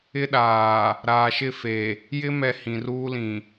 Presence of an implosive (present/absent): present